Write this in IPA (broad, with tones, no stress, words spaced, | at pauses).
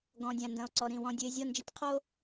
ɡɔ̃˨ dʲã˨ndɐ̃˨o̯ǀɔ˨ ɾĩ˨ wɔ̃˨dʲɨ˨e̯ zʲɔ˦˨nd͡ʒɘ˦tʲqʰo˦